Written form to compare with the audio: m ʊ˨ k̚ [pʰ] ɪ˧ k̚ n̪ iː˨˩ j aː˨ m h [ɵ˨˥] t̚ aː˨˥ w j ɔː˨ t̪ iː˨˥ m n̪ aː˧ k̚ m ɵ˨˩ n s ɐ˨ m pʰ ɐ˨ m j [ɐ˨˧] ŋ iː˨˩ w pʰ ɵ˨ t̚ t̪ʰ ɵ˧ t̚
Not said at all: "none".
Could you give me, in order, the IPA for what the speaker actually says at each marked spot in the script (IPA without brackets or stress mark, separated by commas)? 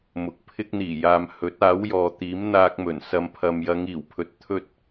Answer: pʰ, ɵ˨˥, ɐ˨˧